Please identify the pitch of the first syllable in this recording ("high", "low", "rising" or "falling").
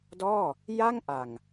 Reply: falling